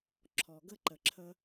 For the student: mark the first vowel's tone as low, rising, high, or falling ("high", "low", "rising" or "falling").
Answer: low